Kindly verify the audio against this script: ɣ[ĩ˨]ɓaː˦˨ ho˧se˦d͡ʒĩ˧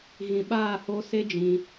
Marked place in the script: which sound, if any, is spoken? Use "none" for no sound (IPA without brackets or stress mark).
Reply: ĩ˨